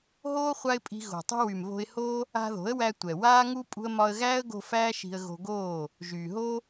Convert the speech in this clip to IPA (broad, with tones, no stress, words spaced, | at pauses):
ɦoː˦ χʷa˦ɪ̯pʼi̤˧ ɣo̤˨tˤṳ˧wy˨m βo̤˧ɪ̯ho˦ | a̤˧ðo̤˨˦ə̯wæ˧ tʷɛ˨waː˦ŋu˦ pʼṳ˧ə̯mɒ˧ə̯ɣæː˦ə̯ɡo̤˧ fæː˦ ʃi̤˧ə̯ɣo̤˧ɡoː˦˨ | ʒyː˨ɦo˦